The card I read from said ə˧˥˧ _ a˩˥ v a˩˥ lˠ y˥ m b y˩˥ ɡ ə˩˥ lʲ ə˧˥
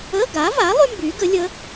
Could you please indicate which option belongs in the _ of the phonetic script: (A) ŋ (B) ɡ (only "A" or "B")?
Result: B